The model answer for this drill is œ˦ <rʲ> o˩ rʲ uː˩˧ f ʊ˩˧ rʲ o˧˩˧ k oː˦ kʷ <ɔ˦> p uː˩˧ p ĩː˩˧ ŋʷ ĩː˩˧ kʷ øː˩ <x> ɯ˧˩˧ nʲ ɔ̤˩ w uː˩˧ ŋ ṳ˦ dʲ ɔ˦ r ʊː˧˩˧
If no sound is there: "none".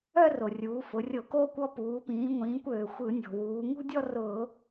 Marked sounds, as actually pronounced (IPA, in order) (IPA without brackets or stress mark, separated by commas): r, ɔ˦, xʷ